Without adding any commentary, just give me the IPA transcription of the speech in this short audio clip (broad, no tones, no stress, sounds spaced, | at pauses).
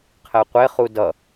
qʰ ɛ qʷ e χ u d ʌ